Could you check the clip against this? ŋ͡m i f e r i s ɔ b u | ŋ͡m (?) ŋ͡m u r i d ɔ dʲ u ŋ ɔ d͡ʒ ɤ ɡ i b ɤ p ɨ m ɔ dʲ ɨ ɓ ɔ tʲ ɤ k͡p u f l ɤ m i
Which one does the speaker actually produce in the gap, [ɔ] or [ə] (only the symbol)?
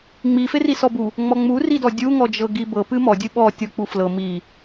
ɔ